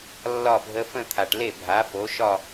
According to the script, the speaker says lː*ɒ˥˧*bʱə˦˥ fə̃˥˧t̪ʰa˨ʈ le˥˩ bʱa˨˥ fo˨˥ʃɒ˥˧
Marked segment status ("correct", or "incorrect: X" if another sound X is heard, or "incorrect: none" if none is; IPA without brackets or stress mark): correct